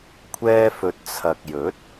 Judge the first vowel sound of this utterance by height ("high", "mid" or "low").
mid